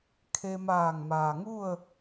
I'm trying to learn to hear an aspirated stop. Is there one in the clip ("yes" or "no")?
yes